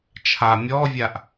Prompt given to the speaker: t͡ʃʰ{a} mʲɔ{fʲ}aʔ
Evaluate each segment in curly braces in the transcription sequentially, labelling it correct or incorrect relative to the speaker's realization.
correct, incorrect: vʲ

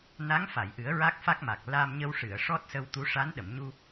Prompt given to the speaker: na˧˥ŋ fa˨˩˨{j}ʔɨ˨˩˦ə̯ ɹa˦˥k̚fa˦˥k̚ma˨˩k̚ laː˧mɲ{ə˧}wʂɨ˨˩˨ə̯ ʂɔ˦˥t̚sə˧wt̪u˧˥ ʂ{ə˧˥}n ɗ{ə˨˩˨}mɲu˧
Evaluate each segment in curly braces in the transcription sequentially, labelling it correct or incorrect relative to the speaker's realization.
correct, correct, incorrect: a˧˥, correct

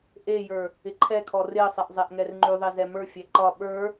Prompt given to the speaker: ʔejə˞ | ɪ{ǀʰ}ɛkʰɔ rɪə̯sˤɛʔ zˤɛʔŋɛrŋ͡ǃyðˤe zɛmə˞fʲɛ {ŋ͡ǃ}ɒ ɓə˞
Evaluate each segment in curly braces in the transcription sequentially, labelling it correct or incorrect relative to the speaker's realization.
incorrect: ǃʰ, incorrect: ǃ

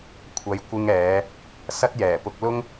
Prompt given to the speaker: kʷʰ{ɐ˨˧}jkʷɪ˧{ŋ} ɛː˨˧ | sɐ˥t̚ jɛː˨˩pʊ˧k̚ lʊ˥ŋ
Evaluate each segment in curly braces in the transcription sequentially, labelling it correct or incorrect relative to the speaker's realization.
correct, correct

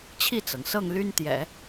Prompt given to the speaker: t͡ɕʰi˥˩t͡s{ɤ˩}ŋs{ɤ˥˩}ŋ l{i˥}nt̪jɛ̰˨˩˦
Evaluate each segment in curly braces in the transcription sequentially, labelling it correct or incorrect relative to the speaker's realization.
correct, correct, incorrect: y˥

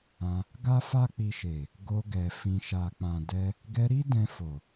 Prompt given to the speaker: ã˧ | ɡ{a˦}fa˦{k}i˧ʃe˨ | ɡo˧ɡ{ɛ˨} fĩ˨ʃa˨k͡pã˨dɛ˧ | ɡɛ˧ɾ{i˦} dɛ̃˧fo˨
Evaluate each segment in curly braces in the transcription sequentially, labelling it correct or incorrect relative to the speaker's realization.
correct, incorrect: k͡p, correct, correct

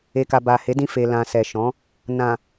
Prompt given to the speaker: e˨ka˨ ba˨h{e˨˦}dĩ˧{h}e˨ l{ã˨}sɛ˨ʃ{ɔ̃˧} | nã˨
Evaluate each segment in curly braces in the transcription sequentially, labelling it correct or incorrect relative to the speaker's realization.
correct, incorrect: f, correct, incorrect: ɔ̃˨˦

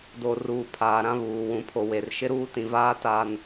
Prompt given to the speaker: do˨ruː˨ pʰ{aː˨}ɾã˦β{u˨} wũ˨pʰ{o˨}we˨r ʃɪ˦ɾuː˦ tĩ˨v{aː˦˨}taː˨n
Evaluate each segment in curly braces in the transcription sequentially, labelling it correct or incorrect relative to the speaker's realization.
correct, incorrect: uː˨, correct, incorrect: aː˦

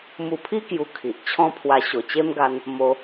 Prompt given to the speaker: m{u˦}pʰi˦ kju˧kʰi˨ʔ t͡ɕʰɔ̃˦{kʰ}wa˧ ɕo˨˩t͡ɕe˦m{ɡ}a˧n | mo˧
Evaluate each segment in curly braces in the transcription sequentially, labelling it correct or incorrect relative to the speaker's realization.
incorrect: u˧, incorrect: pʰ, correct

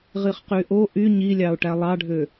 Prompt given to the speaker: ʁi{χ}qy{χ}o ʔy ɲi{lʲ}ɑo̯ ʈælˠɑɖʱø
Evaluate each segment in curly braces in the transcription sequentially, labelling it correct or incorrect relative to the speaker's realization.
correct, incorrect: ʔ, correct

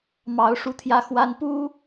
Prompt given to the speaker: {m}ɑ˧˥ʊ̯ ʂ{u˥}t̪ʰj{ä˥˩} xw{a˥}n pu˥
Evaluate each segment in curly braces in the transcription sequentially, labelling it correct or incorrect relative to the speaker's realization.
correct, correct, incorrect: ä˥, correct

